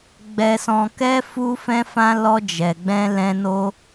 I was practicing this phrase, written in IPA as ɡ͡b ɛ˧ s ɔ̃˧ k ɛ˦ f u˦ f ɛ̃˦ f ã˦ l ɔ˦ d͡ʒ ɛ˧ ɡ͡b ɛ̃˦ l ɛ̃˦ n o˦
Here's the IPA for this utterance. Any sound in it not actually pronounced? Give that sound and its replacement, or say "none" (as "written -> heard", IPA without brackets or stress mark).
none